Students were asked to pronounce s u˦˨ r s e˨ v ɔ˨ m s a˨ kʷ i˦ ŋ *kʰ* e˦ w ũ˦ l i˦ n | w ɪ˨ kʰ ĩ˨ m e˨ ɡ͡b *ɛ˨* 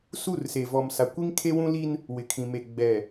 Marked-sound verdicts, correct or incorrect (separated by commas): correct, correct